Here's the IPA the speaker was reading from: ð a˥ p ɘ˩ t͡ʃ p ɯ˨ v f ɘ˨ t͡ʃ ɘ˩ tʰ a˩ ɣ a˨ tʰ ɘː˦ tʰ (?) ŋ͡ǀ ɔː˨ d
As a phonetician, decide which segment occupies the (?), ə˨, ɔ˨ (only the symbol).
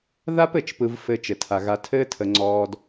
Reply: ə˨